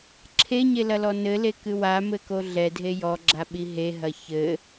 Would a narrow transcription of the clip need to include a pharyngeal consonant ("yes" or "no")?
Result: no